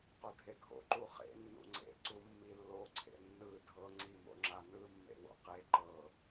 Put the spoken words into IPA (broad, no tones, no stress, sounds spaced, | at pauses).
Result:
q o dʱ e ɡʱ o̰ ǃ u χ ḛ nː ṵ ŋ͡ǀ ḛ ǀ u mː i lː o ǀʰ ḛ nː ɯ dʱ ɤ ŋ͡ǀ i m o̰ ŋ͡ǁ a n ɯ mː ḛ w o̰ q e ǃ ɤ